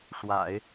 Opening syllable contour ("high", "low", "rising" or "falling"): low